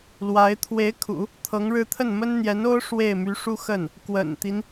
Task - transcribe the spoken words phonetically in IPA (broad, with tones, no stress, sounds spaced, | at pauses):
l w a˧˥ ɪ̯ t̪ʰ w e˧˥ ɪ̯ kʰ ṵ˨˩˦ | t̪ʰ ɤ˧˥ ŋ ɻ ɻ̩˥˧ t̪ʰ ə˥˩ n m ə˥ n n̪ j ɛ˧˥ n o˥ ʊ̯ ʂ w e˥˩ ɪ̯ m y˧˥ ʂ u˥ x ə˥˩ n | k w ə̰˨˩ n t̪ i˦ n